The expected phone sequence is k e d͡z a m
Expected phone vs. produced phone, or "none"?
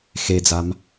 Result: k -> x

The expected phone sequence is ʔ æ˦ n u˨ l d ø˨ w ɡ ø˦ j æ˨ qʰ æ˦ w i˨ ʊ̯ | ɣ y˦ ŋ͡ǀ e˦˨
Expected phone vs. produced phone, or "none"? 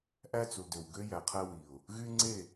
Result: n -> t͡s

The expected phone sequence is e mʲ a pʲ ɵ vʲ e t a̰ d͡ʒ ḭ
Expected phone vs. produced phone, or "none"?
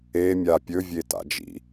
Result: none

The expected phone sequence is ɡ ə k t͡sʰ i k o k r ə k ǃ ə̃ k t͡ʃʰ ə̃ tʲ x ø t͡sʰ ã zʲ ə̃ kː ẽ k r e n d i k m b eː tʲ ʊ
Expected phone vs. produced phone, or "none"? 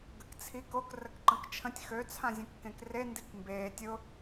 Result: none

